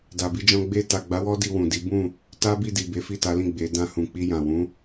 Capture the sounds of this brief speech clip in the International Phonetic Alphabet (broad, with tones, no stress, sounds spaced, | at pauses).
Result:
d a˨ b i˧ d͡ʒ ɔ̃˧ ɡ͡b e˧ t a˨ ɡ͡b a˨˦ w ɔ˦ d i˧ w ũ˨ d i˨˦ b ũ˦˨ | t a˦ b i˦˨ d i˨ b e˨˦ f i˦˨ t a˨˦ l ĩ˦˨ ɡ͡b e˨˦ d ã˦ h ũ˧ k͡p i˧ j ã˨ w ũ˨˦